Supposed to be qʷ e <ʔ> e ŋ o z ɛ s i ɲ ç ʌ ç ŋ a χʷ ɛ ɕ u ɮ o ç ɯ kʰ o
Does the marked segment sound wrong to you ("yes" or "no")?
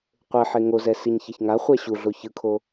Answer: yes